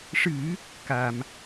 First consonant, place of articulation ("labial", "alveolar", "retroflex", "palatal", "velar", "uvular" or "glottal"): retroflex